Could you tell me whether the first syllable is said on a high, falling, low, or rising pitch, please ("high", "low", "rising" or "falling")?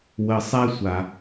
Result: low